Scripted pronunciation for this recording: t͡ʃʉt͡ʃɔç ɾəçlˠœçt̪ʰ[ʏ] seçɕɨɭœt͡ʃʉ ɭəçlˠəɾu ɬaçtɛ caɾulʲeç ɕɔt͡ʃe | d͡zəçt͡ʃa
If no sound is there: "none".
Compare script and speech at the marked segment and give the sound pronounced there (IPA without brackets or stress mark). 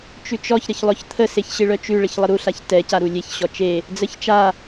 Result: ə